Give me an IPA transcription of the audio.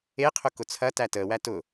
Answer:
e qʰ ʊ k ʊ t͡sʰ ɐ t æ t əː w æ t ʊ

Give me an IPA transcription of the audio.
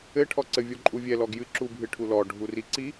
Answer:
ɘ ʈʰ ɔ ǀ ɘ vʲ ɔ ǃʼ u vʲ ɛ l ɔ ɡ j ɨ ǁ u bʱ ɨ ʈʰ u l ɔ ɖʱ u r i ǀ i

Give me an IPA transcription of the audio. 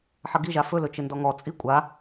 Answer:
ħ ʌ ɡ i ʒ a f ɵ l ɵ t͡ʃ ɪ n d ɔ ŋ ɔ t͡sʼ i kʷʼ a

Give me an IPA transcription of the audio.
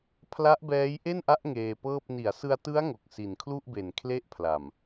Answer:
pʰ l a˦˥ ʔ b ɛː˦˥ j ʔ e˥˩ n ʔ a˦˥ ʔ ŋ eː˧ p ɤː˥˩ p̚ n i˩˦ a̯ s ɯ˧ a̯ t ɯ˦˥ a̯ ŋ o˨˩ k̚ s i˨˩ n kʰ l u˥˩ ʔ b e˨˩ n kʰ l e˥˩ ʔ pʰ l a˨˩ m

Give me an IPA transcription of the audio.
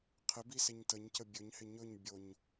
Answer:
qʰ ɪ b i s ɪ ɲ t ə ɲ c ə bʲ ɵ ɲ h ɪ ɲ ɵ ɲ bʲ o ɲ

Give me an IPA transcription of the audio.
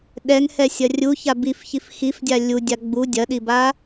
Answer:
ɗ ɛ ŋ h ɛ sʲ ɐ rʲ u ç a b i f ç i f x i f dʲ a lʲ u dʲ a ɡ͡b u dʲ ɐ ɗ i b a

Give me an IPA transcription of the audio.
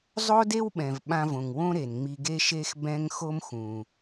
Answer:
zˤ o˥ d e˥ w ɓ ɛ̃˩ v ɓ ã˧ v õ˩ ŋ w õ˥ ɾ e˩ n ŋ͡m i˧ ɡ e˥ ʃ e˥ x b ɛ̃˥ ŋ x o˥ m x ũ˩

